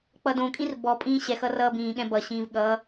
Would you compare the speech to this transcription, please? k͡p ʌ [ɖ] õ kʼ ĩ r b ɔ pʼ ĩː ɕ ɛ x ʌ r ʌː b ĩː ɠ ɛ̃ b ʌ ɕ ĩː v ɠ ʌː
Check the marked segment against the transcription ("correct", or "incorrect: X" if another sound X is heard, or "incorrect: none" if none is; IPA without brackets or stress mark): incorrect: d